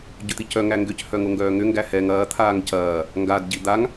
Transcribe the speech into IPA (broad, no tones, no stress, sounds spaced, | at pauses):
ɟ ʏ t̪ i c œ ŋ æ ŋ ɡ ʏ c h œ ŋ o ŋ ɡ œː ŋ ʏ ŋ ɡ æ h ɛ ŋ ɐː t̪ʰ aː ŋ c ɐː | ŋ ɡ a d ɟ i d̪ a ŋ